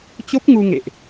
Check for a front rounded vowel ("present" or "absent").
absent